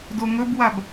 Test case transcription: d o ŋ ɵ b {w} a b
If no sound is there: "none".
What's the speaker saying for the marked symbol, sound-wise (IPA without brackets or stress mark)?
w